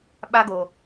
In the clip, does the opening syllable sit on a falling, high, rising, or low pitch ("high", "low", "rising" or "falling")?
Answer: high